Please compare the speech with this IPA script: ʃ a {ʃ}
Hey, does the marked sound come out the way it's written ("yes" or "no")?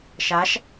yes